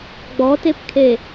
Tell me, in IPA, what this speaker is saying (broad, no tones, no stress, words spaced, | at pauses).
ɡ͡bɔtepkʰe